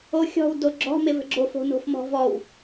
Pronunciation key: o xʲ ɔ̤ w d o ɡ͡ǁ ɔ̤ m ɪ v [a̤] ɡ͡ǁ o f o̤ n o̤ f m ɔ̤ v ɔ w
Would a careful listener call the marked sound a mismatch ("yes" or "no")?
yes